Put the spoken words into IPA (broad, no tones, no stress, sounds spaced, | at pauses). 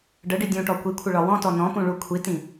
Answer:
ɖ ə ɖ i dʲ ũ ʈ ɔ kʷ i kʷʰ ə ɭ ɒ w ɔ̃ t ɔ n ɔ̃ p ũ ɭ u kʷʰ i t ĩ